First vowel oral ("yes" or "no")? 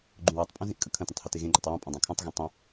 no